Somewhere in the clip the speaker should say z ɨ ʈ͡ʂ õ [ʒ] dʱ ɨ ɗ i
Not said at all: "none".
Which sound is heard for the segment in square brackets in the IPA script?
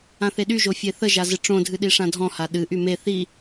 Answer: none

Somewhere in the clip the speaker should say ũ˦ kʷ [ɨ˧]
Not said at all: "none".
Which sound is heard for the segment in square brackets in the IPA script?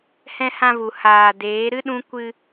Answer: ɨ˧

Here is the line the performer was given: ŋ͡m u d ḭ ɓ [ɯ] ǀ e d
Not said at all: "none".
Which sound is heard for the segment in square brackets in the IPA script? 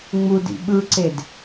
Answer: ɯ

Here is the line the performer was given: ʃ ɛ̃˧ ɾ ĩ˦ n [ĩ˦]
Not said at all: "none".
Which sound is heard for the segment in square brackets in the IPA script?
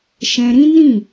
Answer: ĩ˦˨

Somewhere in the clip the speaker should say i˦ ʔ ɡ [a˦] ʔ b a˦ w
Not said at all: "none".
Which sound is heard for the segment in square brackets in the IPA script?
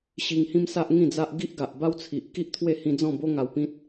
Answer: a˨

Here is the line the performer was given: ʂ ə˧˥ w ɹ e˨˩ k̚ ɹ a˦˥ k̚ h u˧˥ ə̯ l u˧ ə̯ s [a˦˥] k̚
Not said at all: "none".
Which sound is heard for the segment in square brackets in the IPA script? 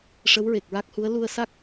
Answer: a˦˥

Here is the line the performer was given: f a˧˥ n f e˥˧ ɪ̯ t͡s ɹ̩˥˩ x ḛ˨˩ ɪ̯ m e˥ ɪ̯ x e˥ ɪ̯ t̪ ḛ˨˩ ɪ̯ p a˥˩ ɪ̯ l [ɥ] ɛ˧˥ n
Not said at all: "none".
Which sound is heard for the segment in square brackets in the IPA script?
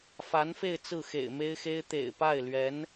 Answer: ɥ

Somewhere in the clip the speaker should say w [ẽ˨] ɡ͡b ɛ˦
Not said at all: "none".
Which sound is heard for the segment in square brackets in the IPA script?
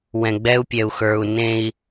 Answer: ɛ̃˨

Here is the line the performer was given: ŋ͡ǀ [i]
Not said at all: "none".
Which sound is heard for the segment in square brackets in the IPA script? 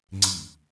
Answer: i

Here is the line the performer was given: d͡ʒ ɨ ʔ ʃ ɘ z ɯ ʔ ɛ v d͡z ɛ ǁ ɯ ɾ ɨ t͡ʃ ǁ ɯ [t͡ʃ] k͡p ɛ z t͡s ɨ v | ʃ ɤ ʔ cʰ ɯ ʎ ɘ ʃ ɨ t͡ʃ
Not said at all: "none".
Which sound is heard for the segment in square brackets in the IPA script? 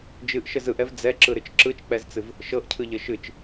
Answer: t͡ʃ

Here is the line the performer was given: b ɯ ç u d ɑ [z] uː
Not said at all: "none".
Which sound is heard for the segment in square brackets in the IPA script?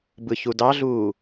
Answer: ɮ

